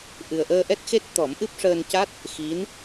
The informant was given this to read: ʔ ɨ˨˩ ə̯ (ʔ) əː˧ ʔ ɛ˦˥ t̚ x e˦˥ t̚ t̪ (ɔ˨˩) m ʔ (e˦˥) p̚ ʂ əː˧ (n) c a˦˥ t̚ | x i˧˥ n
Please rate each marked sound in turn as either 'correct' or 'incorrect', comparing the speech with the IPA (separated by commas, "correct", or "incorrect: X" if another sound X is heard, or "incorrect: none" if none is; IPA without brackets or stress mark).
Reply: correct, incorrect: ɔ˨˩˦, incorrect: ɨ˦˥, correct